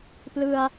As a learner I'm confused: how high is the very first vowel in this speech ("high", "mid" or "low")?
high